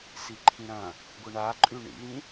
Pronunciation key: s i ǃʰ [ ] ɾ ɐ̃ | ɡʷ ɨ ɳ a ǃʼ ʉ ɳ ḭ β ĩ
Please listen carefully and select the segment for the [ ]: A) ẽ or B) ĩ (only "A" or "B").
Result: B